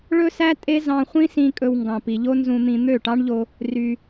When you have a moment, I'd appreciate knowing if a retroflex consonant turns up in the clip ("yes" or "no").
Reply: yes